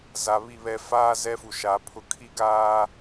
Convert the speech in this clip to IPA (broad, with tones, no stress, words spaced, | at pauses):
za˨βi˦˨βɛ˦ faː˦ zɛ˦fu˨ ʃa˨˦pʰʊ˦ kʰi˦ɡaː˦